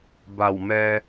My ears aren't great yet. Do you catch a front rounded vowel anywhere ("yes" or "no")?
no